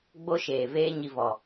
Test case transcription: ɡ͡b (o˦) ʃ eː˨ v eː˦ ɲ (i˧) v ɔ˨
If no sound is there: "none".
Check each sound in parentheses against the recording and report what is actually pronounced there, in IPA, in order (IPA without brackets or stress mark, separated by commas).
o˦, i˧